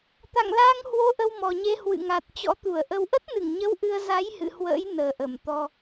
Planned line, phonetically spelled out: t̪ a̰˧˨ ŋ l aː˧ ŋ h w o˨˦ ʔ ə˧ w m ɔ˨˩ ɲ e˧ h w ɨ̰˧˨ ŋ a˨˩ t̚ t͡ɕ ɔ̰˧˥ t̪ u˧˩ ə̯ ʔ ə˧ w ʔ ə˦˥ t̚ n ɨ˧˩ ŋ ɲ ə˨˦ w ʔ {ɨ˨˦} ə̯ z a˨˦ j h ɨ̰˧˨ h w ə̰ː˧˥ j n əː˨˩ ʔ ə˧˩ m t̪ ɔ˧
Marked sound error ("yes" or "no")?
yes